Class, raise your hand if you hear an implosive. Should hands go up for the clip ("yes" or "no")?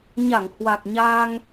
no